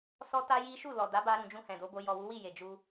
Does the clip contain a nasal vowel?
yes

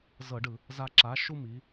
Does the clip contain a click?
yes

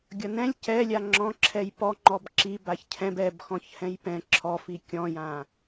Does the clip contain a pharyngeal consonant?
no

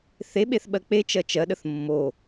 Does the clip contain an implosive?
yes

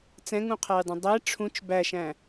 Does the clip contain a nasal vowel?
yes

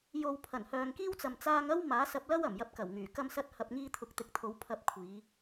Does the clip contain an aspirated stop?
yes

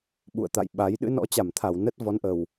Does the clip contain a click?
no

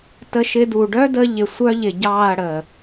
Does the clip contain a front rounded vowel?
yes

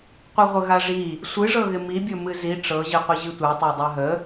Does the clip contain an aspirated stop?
no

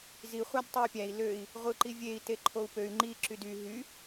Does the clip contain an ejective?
no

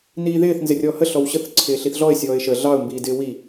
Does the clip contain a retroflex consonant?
no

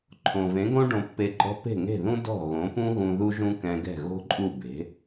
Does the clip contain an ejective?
yes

